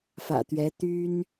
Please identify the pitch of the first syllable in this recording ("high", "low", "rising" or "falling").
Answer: low